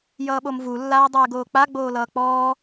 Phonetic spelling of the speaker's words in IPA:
j ʌː ɓ o m v u lː aː dˤ eː ɡ oː k͡p a ɡ͡b oː l ʌː k͡p ɔː

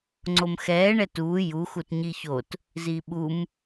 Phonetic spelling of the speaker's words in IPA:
ŋ͡ǀ o m x ɛː ɳ ɛ t uː j u x u t ɲ i ç o t | z i ɓ u m

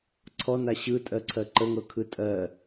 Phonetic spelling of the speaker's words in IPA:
ǀʰ ɔ n a ɕ ɯ tʼ ɜ ǀʰ ɜ ǃ ə ŋ ɤ kʰ ɯ tʼ ɜ

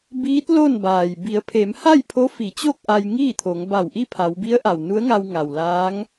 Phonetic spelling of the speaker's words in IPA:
b iː˧˥ t̚ l o˥˨ n b aː˩ j b i˩˧ ə̯ pʰ e˩˧ m h a˥˨ j pʰ o˧˥ f i˩˧ t͡ɕ o˥˨ k̚ ʔ a˧ j ŋ iː˥˨ t̪ʰ o˩˧ ŋ b a˧˩ w ʔ i˥˨ pʰ a˩˧ w b i˧˥ ə̯ ʔ a˩ w n u˧˥ ə̯ ŋ a˧ w ŋ a˩ w l aː˧˥ ŋ

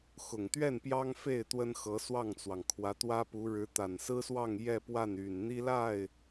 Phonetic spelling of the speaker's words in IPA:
x ʊ˨˩ ŋ t̪ ɥ ɛ˥˩ n p j ɑ˥ ŋ f e˥˩ ɪ̯ t̪ w ə˥ n x ɤ˧˥ s w ɑ˥˩ ŋ t͡s w ɑ˩ ŋ kʰ w ä˧˥ t̪ w ä˥ p u˧˥ ɻ ɻ̩˧˥ t̪ a˨˩ n s ɹ̩˥ s w ɑ˥˧ ŋ j ɛ˥˧ p w a˥˩ n y˨˩ n n̪ i˥ l a˥˩ ɪ̯

